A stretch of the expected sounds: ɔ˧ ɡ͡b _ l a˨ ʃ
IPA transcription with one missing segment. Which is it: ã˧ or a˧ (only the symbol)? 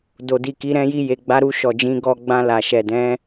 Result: ã˧